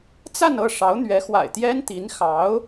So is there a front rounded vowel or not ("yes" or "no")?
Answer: no